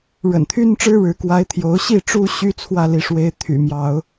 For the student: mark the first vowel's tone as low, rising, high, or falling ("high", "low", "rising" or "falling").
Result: low